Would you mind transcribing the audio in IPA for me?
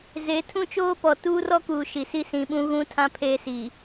z e˨˦ tʰ ũ˦ t͡ʃ oː˦ p ɔ˨ t uː˦ r ɔ˦ k uː˨ ʃ i˨ s i˦ s ĩ˨ ɓ ũ˦ ɣ ũ˦ tʰ ã˦ pʰ eː˦ s i˨

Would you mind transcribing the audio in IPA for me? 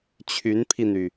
t͡ɕʰ y˧˥ n pʰ i˧ n̪ y˩

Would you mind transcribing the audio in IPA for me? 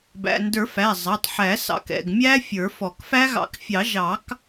b æ̰˩˧˩ n d ə˞˨˩˦ f æ˩˧˩ zˤ ɑ˩˧˩ tˤ ħ æ˨˩˦ s ɑ̰˨˩˦ k ɛ̰˩˧˩ ɡ mʲ æ˦˥ fʲ ə˞˨˩˦ f ɔ˨˩˦ k f æ˦˥ ɣ ɑ̰˨˩˦ k fʲ ɑ˨˩˦ ʒ ɑ˨˩˦ k

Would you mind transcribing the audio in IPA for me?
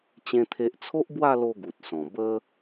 t͡ɕ ẽ˦ t̪ʰ e˦ ʔ t͡sʰ o˦ ʔ b w a˥˧ l o˧ ɡ u˨ t̚ s ɔ̃˨˩ b ə˦

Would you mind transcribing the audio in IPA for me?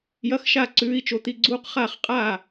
j ɐ˧˥ x ʃ a˥˩ ǀ ʉː˧˥ i̯ t͡ʃ o˧˥ t̪ i˥˩ ɡ͡ǀ uː˧˥ q χ aː˥˩ χ qʼ a˥˩

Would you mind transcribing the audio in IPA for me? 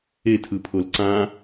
e tʰ ɯ pʰ o l ǀ ã

